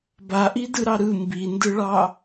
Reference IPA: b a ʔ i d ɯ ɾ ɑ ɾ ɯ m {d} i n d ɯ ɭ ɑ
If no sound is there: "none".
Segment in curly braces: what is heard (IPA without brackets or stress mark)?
b